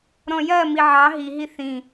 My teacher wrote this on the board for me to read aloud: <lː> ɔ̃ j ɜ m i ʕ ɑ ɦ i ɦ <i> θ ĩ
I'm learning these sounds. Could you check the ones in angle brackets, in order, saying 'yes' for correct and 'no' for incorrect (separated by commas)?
no, yes